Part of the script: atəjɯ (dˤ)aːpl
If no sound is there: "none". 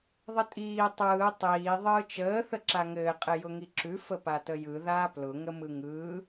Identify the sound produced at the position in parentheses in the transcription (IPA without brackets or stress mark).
ð